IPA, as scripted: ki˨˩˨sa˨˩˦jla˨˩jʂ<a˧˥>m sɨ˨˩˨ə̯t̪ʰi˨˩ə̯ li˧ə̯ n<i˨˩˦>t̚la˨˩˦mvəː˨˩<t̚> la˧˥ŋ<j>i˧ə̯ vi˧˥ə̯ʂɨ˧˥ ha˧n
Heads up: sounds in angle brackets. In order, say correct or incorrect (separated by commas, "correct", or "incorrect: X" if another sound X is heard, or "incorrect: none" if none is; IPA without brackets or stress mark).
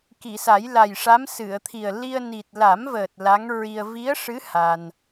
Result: correct, incorrect: i˨˩, correct, incorrect: ɹ